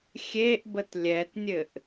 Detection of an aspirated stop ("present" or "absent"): absent